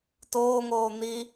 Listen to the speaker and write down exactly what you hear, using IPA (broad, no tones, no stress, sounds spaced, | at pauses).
t oː ŋ oː n̪ i